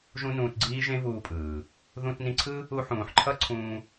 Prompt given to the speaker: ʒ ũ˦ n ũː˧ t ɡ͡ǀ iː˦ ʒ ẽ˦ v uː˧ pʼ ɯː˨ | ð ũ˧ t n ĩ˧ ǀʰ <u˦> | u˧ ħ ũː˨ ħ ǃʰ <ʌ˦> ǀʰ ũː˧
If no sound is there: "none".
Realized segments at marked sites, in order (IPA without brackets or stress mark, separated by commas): ɯ˦, ʌ˦